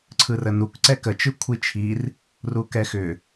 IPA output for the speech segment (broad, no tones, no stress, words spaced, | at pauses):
ǀʰɯrənuk ǀɛkə t͡ʃɯkʷʰit͡ʃʰir | rukɛxʏ